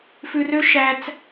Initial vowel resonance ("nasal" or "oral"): oral